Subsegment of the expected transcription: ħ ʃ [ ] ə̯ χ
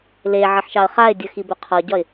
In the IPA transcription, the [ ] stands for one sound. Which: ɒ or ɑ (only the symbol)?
ɑ